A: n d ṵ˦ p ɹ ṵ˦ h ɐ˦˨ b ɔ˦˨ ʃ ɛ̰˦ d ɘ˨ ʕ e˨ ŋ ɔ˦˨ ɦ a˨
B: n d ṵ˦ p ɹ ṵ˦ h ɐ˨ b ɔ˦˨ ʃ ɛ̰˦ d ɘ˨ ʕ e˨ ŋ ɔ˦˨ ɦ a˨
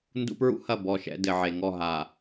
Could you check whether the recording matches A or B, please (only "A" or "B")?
A